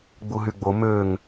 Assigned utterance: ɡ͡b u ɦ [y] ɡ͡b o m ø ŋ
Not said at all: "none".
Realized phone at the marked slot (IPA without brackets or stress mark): y